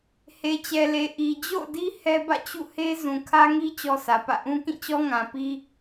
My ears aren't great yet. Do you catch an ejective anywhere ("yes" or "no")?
no